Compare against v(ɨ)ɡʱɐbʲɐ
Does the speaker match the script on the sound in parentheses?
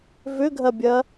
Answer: no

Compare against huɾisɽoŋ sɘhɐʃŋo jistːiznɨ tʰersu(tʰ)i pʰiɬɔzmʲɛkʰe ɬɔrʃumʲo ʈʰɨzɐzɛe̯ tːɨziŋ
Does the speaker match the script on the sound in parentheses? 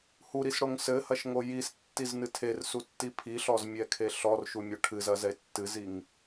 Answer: no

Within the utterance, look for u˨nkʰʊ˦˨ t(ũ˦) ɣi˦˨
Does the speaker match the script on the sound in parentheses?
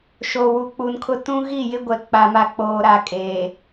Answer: yes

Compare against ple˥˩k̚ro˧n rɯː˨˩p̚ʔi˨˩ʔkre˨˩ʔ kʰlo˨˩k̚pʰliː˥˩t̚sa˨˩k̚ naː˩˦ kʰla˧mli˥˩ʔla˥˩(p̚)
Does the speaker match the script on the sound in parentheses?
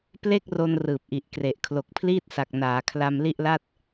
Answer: no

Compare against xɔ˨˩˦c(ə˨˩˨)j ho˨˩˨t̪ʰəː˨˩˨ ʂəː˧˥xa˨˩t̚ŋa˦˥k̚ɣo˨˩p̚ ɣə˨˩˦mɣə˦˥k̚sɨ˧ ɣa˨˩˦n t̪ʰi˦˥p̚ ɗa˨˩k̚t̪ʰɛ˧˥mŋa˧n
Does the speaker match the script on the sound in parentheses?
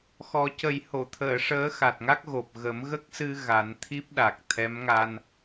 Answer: no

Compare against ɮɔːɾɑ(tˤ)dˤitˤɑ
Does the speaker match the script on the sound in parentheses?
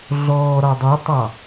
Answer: no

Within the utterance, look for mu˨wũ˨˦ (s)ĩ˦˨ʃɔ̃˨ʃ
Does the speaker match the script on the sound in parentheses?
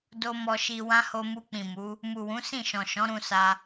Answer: yes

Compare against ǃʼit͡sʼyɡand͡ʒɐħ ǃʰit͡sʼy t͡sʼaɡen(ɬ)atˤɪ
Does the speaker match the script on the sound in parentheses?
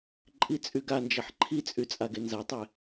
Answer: no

